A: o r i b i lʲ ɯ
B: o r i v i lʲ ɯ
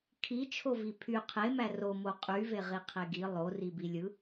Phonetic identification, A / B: A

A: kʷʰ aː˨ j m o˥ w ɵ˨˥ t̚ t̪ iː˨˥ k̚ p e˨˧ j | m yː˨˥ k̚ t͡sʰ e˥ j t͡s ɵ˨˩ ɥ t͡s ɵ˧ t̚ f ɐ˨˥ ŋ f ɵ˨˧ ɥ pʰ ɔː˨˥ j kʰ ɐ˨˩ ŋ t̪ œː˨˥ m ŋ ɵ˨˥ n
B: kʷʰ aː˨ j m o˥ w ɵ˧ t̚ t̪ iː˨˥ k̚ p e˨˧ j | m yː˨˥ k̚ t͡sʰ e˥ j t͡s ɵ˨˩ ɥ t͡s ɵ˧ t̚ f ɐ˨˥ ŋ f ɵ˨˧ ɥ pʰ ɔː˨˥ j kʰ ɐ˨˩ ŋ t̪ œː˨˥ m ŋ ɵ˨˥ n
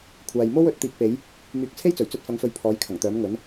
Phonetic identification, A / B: A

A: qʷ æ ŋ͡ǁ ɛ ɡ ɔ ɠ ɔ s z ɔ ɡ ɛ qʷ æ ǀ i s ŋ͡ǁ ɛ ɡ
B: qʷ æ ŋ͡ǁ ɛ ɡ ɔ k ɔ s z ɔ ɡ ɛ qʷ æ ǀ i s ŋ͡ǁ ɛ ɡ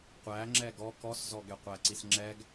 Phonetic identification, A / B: B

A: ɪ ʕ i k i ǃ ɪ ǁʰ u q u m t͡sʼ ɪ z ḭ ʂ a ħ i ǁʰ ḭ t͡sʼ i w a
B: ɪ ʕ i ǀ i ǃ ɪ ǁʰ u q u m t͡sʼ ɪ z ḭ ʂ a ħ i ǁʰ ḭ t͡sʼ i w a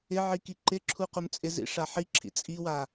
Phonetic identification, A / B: A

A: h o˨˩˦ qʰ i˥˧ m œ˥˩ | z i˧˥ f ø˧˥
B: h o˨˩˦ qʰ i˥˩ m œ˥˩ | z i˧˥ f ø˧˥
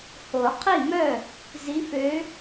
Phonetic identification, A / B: B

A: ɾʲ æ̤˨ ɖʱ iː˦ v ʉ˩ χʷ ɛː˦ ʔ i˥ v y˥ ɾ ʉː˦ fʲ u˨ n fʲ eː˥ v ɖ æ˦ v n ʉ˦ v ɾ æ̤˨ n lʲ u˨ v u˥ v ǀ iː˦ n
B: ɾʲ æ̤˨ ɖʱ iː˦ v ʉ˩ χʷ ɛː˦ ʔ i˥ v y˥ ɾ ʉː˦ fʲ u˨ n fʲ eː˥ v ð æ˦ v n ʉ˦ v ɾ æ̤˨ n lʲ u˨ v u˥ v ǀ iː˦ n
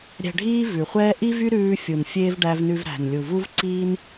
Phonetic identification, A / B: A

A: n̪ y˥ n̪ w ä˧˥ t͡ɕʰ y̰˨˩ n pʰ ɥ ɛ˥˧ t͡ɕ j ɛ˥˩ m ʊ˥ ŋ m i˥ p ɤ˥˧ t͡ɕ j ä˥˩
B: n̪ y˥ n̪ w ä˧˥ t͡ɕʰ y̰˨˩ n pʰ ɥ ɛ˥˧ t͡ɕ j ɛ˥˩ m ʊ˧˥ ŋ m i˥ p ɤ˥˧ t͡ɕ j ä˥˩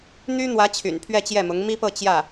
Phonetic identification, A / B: B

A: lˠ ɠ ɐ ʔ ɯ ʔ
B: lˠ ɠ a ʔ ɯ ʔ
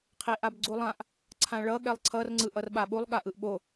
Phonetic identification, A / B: B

